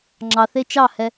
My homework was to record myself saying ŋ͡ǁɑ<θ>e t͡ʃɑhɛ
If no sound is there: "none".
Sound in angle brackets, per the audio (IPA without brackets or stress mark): θ